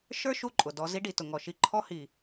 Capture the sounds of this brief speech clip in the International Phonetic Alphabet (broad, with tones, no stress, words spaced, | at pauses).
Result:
ʃə˞˦ ʃu˦ǃʼʊ˨ dɔ˨ zi˦ɖi˨tʊ˨ŋɔ˨ ʃi˨˦ǃʰɔ˦hi˨